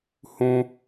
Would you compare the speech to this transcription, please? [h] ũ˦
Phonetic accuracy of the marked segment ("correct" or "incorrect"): correct